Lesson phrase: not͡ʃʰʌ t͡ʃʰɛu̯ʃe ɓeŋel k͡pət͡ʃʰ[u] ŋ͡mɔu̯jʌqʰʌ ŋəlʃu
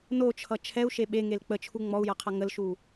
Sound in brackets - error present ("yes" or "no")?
no